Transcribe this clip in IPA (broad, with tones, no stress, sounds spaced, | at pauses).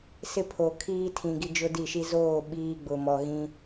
s ɪ˦ pʰ o˨ kʰ iː˦ tʰ ĩ˨ ɡ i˦ d͡ʒ ʊ˦ d i˦˨ ʃ i˦ z oː˦˨ ɓ iː˦ ɡ͡b ʊ˨ m ɔ˨ ɣ ĩ˦